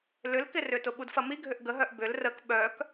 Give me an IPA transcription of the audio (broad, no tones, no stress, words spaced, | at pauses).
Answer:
lʏlkɪrʏtʊ ɓudfɐmiɡʱʏʔ ɡəɦœʔ bʏl rək ɓœk